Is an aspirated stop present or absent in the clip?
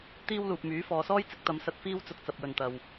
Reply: absent